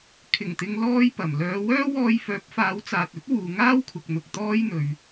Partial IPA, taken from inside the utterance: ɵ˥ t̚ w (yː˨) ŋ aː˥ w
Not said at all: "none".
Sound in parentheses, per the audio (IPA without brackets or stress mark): uː˨